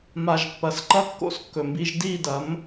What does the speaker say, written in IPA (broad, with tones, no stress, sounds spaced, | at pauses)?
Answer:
m a˨ ʒ pː ɐ˨ s ǃ ɐ˦ kː o̰˦ s kː ɵ˨ m b i˦ ʒ d i˦˨ d ɐ˨˦ m